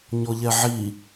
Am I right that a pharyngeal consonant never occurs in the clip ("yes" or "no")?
no